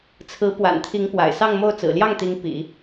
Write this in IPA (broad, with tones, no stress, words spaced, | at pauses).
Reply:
t͡sʰɹ̩˧˥ pwa̰˨˩nt̪ʰi˧˥ŋ pwa̰˨˩ɪ̯sɑ˥˧ŋmo˥˩ʊ̯ t͡sɹ̩˨˩ljɑ˥˩ŋt̪i˧˥ŋ pḭ˨˩˦